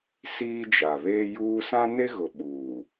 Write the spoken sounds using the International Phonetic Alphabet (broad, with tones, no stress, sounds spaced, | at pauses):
s iː˦ d͡ʒ a˨ β eː˦ j uː˦ s ã˦ n e˦ ɣ ʊ˨ ɓ uː˨